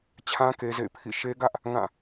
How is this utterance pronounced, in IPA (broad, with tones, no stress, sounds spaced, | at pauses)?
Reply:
t͡ɕʰ ã˦ k e˦ z ḛ˦˨ ɪ̯ pʰ ḭ˦˨ ʃ e˦ ɡ ä˦ ʔ | ŋ ã˦˨